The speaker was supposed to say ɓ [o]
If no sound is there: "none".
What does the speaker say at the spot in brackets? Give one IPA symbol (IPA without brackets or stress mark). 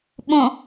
õ